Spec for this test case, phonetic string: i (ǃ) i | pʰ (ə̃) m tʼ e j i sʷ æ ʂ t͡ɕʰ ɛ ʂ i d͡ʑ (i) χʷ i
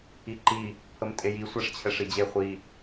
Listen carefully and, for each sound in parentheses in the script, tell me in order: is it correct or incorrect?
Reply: correct, incorrect, incorrect

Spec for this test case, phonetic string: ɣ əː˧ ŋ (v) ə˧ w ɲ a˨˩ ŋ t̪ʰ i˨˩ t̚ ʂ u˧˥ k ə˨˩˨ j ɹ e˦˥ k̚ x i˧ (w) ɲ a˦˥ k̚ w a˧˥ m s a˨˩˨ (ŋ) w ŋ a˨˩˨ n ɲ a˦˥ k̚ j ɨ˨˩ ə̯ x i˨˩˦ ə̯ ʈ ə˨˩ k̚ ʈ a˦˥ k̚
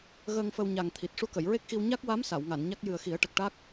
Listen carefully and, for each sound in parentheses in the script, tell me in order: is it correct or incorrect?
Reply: incorrect, correct, incorrect

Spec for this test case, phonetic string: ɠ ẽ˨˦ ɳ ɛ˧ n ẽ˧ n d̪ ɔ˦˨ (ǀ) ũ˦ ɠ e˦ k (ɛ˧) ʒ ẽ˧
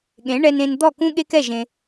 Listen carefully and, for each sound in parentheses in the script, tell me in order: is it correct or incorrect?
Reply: incorrect, incorrect

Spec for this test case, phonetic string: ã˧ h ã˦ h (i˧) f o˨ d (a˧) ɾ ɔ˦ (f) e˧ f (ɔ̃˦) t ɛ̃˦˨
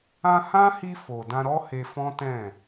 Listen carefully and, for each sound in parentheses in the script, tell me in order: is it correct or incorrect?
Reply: correct, incorrect, incorrect, correct

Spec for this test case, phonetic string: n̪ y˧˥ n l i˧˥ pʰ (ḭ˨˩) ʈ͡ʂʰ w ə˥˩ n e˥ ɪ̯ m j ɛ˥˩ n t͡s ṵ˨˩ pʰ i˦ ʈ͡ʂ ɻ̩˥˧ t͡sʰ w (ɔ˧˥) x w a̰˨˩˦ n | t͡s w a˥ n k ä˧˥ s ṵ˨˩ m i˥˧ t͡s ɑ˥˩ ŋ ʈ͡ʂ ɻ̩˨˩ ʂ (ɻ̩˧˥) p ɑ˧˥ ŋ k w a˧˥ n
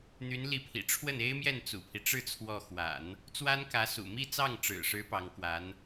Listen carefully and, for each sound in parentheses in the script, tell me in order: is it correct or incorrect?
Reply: correct, incorrect, correct

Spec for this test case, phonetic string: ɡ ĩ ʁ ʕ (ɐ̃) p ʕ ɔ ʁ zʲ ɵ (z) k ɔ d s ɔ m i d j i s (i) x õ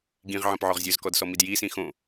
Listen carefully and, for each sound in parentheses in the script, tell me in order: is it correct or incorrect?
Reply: correct, correct, incorrect

